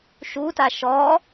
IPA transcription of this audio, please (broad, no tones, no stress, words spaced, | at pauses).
ʃuta ʃɔ